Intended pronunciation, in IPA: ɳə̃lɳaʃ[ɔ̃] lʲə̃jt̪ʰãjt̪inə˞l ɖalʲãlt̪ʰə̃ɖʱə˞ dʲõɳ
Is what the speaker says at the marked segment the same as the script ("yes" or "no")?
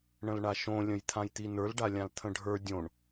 no